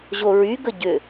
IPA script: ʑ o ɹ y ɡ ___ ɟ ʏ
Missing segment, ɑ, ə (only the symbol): ə